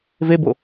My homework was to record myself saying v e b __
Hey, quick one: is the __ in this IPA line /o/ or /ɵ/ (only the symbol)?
o